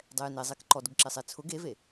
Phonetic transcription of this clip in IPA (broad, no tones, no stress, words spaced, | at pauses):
dˤɛjnezˤek ǃɔ dʊɡǁesˤet͡sʰʊɡ eve